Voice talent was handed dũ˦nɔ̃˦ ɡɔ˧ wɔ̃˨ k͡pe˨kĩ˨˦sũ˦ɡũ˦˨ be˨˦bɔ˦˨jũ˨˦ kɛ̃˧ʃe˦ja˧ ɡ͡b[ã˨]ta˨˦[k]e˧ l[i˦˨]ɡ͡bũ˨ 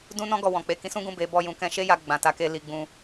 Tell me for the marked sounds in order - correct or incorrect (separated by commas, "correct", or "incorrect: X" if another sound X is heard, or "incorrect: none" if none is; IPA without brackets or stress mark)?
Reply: correct, correct, incorrect: i˨